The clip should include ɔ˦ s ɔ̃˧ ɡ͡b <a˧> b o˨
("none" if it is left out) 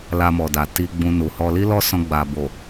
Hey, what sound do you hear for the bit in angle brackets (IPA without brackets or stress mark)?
a˨